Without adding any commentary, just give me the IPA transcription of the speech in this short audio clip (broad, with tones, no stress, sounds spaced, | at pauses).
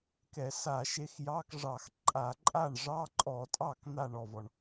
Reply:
k ɛ˧˩˧ s a˧˩˧ ʃ e˨˥ x j ɑ˧˥˧ k ʐ ɑ˧˩˧ x ǃʼ a˧˩˧ ǃʼ a˥˩ ɳ ʐ ɑ˧˥˧ ǃʼ ɔ˧˩˧ tʼ ɑ˥˩ k n̪ a˥˩ ɳ ɔ˥˩ v ɔ˩ ɳ